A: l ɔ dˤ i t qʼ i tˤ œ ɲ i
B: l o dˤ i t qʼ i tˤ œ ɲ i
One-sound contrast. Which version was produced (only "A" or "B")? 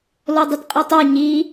B